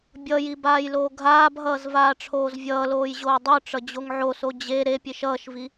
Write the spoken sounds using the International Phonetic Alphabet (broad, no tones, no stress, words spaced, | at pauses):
bʲʌji baːjloːɡʱaːbɦʌːz vaːʈ͡ʂʰoːzvʲʌːloːj ʑoːdˤoʈ͡ʂʌ d͡ʑoŋʕoso d͡ʑe ɾepʲeʃ ʌːʃvi